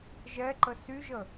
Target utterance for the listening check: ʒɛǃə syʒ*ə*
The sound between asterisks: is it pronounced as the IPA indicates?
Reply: yes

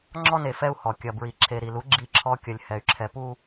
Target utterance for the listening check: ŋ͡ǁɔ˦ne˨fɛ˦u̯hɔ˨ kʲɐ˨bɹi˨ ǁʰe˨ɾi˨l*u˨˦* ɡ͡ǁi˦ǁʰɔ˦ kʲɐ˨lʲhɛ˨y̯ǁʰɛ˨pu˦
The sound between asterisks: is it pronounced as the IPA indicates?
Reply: yes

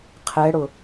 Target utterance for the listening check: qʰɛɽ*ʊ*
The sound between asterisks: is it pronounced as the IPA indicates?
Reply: yes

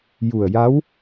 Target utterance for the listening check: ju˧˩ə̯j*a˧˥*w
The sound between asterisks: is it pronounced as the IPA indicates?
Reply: yes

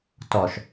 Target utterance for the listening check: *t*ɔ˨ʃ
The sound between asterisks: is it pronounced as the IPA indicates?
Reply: yes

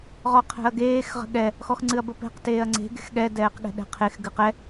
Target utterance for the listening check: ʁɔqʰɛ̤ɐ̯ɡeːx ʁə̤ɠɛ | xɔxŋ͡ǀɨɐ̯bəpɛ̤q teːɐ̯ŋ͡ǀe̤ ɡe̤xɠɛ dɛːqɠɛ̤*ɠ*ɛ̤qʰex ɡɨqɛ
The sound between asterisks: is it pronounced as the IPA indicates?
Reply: no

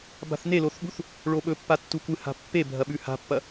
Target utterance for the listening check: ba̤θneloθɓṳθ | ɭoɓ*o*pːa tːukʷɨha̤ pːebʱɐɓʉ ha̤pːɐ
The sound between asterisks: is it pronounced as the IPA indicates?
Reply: no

